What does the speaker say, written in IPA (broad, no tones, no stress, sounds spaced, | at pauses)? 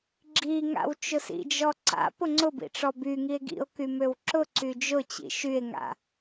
ɡ͡ǁ i ŋ a̰ w t͡ʃ ʊ s ḭ d͡ʒ ɔ ǀ a̰ p ʊ ŋ͡ǀ ʊ b ḭ ʈ͡ʂ ɔ b y ŋ i e̯ ɡ ḭ o̯ k y m ø w ǁ ʊ ǀ y d͡ʒ ʊ t͡ɕ ḭ ʃ y e̯ ŋ a̰